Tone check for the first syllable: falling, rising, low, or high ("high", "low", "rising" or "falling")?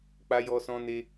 high